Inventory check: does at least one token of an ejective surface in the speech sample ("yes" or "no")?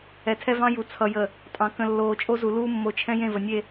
yes